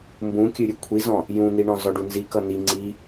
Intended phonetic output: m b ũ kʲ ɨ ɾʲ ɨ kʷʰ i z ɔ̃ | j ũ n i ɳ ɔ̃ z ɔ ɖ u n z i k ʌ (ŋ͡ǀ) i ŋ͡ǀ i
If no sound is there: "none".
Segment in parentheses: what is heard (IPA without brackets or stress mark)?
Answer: n